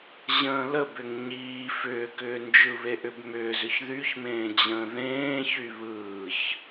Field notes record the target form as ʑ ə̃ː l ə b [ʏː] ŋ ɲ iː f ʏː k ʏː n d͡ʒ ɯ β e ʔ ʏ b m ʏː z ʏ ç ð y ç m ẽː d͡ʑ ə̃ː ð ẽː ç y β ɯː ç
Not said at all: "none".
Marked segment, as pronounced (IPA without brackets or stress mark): ʏ